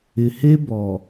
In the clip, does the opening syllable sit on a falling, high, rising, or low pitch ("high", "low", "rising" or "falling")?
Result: low